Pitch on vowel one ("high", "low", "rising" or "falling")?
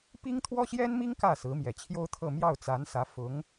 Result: high